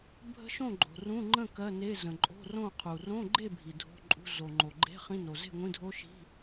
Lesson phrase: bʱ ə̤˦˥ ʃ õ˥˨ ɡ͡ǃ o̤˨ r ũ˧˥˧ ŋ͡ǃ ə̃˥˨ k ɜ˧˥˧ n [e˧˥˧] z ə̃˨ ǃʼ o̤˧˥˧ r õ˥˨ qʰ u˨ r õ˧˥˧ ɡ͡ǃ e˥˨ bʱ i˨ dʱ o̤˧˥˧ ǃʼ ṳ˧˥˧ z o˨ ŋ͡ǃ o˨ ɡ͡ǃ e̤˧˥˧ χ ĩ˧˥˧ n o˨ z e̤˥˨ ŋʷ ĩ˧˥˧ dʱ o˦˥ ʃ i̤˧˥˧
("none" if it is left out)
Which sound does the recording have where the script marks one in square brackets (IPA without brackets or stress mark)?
e˧˥˧